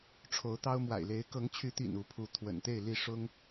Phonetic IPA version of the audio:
ʈ͡ʂʰ o˨˦ ʊ̯ t̪ ɑ˦ ʊ̯ m w a̰˨˩ ɪ̯ l e˨˦ ɪ̯ k ɤ˨˦ ŋ t͡ɕʰ y˨˦ t̪ ḭ˨˩ n u˨˦ pʰ u˨˦ t̪ʰ w ə̰˨˩ n t̪ e˥˨ ɪ̯ l i˥˨ ʂ ʊ˦ ŋ

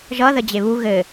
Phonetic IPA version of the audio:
ʒ ʌ ð ə d͡ʑ e β u ɣ ɘ

